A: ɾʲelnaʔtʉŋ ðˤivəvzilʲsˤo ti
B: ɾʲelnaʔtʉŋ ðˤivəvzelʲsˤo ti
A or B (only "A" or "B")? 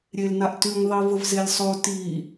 B